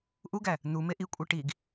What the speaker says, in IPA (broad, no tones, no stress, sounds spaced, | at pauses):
ʔ u ɡ æ | n̪ u m e ʔ i kʷʼ e ʈ i ɡ